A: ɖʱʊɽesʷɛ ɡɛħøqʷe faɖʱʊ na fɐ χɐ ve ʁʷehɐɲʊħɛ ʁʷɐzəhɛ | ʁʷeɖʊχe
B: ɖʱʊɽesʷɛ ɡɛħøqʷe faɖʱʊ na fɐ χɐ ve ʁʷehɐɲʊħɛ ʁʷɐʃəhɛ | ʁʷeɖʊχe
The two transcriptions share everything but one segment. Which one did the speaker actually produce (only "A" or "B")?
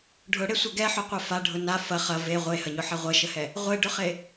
B